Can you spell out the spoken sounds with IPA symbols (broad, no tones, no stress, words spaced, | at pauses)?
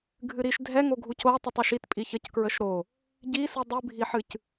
ɡʱɨɾiʃ dʱɛŋoɡʱuc o tˤitˤiʃit pʼiçəckɹəʃ ɾo | ɟisɨ dˤɨbʱiħɨc